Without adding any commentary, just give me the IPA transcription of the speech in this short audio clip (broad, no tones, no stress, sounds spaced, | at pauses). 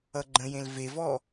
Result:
ʌ ɡ͡ǃ ə̃ j ẽ l v e v ɔ